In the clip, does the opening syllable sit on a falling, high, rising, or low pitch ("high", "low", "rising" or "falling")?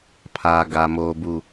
low